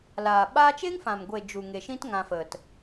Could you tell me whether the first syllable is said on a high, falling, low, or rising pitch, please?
low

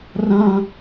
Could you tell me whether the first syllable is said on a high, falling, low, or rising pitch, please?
high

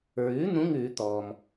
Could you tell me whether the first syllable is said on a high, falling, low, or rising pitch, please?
rising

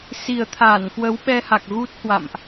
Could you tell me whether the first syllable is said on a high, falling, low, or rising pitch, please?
low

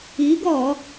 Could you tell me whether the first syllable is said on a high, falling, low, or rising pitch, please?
rising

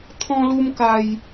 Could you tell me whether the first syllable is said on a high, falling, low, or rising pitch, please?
high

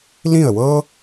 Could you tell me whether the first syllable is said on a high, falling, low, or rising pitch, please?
falling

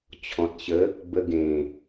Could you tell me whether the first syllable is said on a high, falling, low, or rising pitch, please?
low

